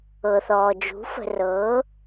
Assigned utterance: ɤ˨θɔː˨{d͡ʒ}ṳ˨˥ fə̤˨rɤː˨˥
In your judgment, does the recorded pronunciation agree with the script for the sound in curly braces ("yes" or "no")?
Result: yes